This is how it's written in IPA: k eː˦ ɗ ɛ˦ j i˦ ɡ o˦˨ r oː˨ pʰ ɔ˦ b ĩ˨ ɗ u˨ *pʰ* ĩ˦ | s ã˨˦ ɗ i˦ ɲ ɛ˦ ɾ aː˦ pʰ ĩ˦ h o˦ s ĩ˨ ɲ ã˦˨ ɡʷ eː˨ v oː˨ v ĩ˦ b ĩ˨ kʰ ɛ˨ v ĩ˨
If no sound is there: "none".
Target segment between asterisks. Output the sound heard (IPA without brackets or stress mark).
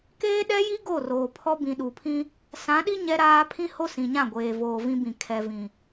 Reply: pʰ